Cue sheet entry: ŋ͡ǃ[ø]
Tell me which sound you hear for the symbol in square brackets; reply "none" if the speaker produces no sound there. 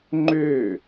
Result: ø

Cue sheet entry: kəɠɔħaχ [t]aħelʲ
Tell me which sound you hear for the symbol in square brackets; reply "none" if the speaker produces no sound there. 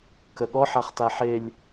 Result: t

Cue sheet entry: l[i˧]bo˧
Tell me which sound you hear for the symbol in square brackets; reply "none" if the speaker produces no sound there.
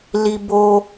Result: i˧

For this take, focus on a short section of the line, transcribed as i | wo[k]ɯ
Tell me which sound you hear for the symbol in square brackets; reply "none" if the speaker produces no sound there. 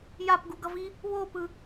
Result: p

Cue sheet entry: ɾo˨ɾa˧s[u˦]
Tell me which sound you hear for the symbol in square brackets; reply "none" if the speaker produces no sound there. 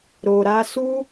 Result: u˦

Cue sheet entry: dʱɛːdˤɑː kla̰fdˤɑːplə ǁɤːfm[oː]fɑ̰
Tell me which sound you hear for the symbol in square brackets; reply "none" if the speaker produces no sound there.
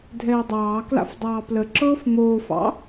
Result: oː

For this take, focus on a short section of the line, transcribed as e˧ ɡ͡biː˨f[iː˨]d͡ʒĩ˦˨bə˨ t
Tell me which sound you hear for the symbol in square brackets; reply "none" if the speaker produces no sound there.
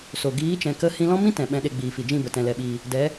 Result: i˨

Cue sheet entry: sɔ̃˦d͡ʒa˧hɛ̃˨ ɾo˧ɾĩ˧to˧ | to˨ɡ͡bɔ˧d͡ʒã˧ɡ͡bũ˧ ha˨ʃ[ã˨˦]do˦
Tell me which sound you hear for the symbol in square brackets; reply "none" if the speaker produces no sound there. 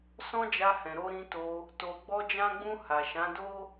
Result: ã˨˦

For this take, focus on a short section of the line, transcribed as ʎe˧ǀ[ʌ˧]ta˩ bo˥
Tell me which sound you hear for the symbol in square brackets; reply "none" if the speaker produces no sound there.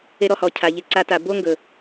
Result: a˧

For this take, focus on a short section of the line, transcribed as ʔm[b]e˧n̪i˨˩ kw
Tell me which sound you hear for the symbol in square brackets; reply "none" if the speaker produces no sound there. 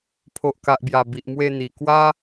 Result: w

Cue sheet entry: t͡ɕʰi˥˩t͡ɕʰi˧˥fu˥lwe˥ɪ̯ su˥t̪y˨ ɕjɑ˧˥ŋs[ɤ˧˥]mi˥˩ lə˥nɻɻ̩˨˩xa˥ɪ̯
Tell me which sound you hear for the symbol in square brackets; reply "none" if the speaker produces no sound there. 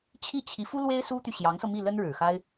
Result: ɤ˧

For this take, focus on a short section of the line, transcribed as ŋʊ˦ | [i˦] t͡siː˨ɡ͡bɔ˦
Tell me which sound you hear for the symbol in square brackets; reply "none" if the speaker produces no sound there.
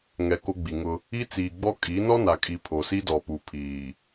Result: i˦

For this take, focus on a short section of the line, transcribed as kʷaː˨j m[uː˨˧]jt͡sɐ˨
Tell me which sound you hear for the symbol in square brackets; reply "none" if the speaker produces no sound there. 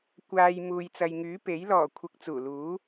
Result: uː˨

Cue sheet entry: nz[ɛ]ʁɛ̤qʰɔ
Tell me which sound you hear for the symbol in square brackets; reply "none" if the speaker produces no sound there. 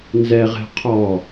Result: ɛ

